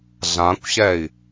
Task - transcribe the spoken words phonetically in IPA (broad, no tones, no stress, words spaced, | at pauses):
ɮãkʷɕɛi̯